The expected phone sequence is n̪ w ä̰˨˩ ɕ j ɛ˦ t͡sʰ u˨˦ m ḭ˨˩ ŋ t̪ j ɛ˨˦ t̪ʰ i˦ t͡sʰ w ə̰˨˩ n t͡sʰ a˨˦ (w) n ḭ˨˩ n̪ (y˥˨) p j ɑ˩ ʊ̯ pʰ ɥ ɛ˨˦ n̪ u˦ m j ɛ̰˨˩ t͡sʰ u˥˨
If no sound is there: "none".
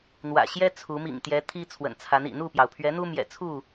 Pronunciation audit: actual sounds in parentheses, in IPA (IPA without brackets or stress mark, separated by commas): none, u˥˨